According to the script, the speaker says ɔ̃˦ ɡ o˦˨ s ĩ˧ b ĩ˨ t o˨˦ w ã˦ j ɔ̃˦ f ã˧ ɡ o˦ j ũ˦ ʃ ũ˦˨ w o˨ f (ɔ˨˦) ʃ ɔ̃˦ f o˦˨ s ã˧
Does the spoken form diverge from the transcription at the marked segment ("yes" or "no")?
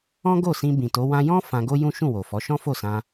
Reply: no